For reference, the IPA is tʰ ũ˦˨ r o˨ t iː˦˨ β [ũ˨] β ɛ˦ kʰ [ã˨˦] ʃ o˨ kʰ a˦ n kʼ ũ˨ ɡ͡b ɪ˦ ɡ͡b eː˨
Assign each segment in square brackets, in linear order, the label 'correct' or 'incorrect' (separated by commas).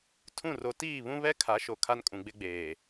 incorrect, incorrect